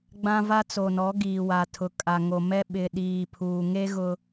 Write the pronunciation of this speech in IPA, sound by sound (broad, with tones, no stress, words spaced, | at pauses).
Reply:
ɡ͡bã˦va˦t͡so˨nɔ˨˦ ɡiː˨wa˨ tʰʊ˨kʼa˨ŋo˨mɛ˦ ɓɪ˨ ɗiː˨pʰuː˨ ŋe˦ ɣʊ˦